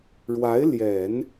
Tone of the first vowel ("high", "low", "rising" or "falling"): rising